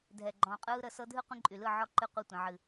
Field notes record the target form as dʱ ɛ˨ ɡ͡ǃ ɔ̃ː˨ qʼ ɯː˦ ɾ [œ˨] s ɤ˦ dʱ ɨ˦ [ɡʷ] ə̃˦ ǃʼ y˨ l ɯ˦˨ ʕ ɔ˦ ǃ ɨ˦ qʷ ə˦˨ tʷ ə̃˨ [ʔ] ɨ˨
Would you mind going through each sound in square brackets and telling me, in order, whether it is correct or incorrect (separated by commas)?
incorrect, incorrect, incorrect